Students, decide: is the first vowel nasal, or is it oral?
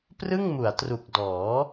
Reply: oral